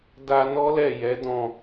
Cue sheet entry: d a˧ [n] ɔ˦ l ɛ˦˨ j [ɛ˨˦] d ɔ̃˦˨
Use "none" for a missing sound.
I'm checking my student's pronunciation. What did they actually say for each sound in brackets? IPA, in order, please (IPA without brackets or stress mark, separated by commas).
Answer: n, ɛ˨˦